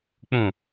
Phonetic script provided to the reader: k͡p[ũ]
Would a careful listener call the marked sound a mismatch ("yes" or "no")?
no